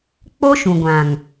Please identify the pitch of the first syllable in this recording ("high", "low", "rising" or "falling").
high